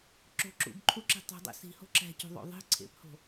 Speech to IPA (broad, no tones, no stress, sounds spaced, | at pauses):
ǁ o̤ ǁ ṵ b ǃʰ u ǁ i̤ tˤ i̤ dˤ ḛ s i̤ h o̤ ǁ æ̤ c o̤ ðˤ o̰ ðˤ i̤ ǀʰ ḛ p h o̤